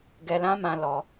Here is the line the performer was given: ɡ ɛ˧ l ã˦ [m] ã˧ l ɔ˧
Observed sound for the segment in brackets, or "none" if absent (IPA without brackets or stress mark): m